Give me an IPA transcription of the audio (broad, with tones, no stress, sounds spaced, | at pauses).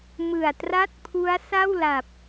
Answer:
m ɯ˨˩ a̯ t r a˥˩ t̚ pʰ u˦˥ a̯ s a˥˩ w l a˨˩ p̚